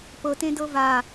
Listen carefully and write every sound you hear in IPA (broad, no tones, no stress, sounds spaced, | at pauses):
p ɤ t ẽ d ɤ v a